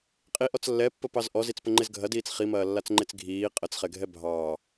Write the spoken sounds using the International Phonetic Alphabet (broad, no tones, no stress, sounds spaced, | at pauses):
qʼ i ʔ ɔ t͡s lː ɛ pː ə p ɑ z ʔ ɔ z i t͡s p ə ŋ͡ǃ e z ɡʱ ɐ d iː t͡s χ i m ɐː lː a t͡s ŋ͡ǃ e t͡s ɡʱ iː qʼ ə t͡s χ ɛ ɡʱ ɛ bʱ ɑː